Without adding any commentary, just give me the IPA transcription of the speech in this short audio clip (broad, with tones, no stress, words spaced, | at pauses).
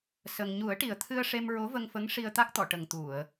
sə˧ŋ ɲu˨˩˦ə̯ʈi˨˩ə̯t̪ʰɨ˧ə̯ ʂe˧mɹo˧˥və˧ŋfə˧˥ŋ ʂi˧ə̯t̪a˦˥k̚t̪ɔ˨˩˨ʈə˨˩ŋ t̪u˨˩˨ə̯